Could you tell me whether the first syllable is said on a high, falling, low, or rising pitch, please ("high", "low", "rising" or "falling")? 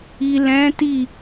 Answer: low